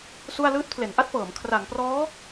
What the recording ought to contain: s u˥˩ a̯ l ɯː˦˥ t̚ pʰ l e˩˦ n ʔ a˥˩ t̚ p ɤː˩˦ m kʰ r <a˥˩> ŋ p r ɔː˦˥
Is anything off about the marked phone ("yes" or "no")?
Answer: yes